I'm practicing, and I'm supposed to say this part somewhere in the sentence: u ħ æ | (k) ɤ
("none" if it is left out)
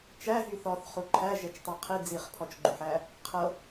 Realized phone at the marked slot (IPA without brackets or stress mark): qʰ